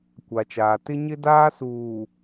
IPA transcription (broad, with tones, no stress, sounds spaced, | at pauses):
kʷ a˨ t͡ʃ aː˨ t ɪ˦ ɲ ɪ˦ d aː˦ s uː˨